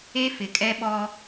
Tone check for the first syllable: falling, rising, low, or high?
high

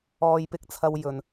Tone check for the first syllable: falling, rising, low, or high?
high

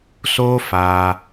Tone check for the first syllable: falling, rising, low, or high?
high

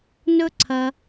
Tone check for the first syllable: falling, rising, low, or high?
high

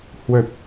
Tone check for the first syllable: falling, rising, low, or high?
low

